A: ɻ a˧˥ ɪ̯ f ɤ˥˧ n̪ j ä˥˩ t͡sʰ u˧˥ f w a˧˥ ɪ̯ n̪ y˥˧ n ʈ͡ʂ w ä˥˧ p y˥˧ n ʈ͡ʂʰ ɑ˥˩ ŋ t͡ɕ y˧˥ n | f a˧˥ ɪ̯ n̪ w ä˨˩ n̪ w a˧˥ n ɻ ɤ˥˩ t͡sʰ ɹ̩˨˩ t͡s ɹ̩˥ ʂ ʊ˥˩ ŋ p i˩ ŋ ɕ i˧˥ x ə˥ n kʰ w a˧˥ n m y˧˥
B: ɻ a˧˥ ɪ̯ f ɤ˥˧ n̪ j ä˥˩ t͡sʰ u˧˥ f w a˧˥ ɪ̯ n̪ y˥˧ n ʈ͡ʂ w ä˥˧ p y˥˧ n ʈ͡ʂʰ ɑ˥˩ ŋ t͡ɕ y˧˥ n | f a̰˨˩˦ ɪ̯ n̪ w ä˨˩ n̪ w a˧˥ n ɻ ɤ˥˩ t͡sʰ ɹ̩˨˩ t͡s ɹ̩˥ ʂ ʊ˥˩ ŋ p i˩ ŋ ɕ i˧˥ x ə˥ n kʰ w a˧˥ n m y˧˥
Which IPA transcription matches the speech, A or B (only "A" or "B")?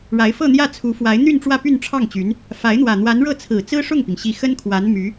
A